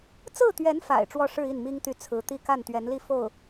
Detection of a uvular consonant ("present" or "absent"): absent